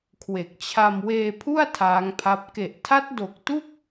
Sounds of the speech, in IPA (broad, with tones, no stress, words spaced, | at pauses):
kʰwe˨˩k̚t͡ɕʰa˧m weː˧pʰu˥˩a̯ tʰaː˦˥ŋpʰa˦˥p̚ ke˨˩ʔtʰa˦˥t̚ do˨˩k̚tu˥˩k̚